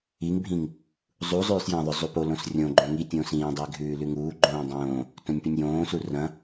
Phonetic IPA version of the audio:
iŋbʱĩŋ | zˤuzˤʉːs jɐ̃ðˤʏ zˤupolõs rʲõɡ͡ǃõ ŋi tʲõːsĩːdˤiː ɡʱʉːlʉŋuːɡ͡ǃõː dˤõː | tõnʲpinʲjõːsu rɐ̃

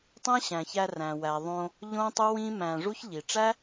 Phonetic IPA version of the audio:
tˤæ̃˦ɕæ̃˨çæ˧ ræ̃˨wæ˨ðˤõ˧ | ʎõ˦tˤu˦wĩ˦ mæ̃˧ʐu˦ç ʎi˨ ʈ͡ʂæ˦

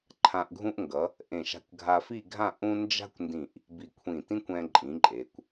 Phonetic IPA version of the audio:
ǃʰã˧ʔɡʱũ˥ʔ ŋɡʌ˩˧ | ʔẽ˧˩ ʃa̤˧kʷɡʱa˧fi˥˧ɡʱã˥˧ ʔũ˥ nd͡ʒa̤˥kʷndĩ˧˩ʔ | bi˧˩kʷʰĩ˧˩tĩ˥kʷ ɛ̃˧ǃʼĩ˩˧ ǃʼe˩˧kʷ

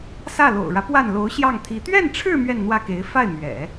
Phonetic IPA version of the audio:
sä˥˩lo̰˨˩ʊ̯ɻä˦ pwa˥˩nlo˧˥ʊ̯ɕjɑ˥˩ŋt̪ʰi˧˥ t̪ɥɛ˥˧nʈ͡ʂʰɻ̩˥˧ mɥɛ˥˧nn̪wä˥˩ke˧˥ɪ̯ fa˥˩ɪ̯mɥɛ̰˨˩˦

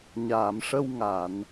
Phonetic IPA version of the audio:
ɲaː˨˩˨mʂə˧w ŋa˨˩˨n

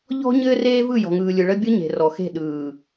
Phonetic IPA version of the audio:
ʎɔ̤˦ ɲɘː˦reː˦vɯ˦˨ jɔ̤˨ŋɯː˨lʲɯ˨ ɭə˦ bʲɯ˦ɲe̤˨rɔ˨xe̤˦˨ ɗɯː˨

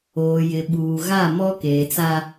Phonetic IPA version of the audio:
oː˨jɪ˨ɓuː˨ ɣa˦˨mɔ˦ keː˨t͡sa˦

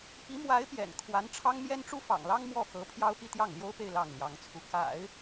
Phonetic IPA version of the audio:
pi˧˥mwa˧˥ɪ̯ pjɛ̰˨˩n kʰwa˧˥nʈ͡ʂʰɑ˥ŋmjɛ˥n ʈ͡ʂu˥fɑ̰˨˩ŋlɑ˥ŋ mwɔ˥˩xɤ˧˥ pʰjɑ˥ʊ̯pi˥˧t̪jɑ˥˩ŋ ljo˥ʊ̯pe˥˧ɪ̯ lɑ˥˩ŋljɑ˧˥ŋt͡sʰu˧˥ ka̰˨˩˦ɪ̯

